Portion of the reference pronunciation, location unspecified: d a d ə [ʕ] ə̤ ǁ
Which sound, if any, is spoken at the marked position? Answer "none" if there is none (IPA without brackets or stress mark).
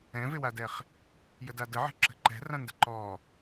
ʕ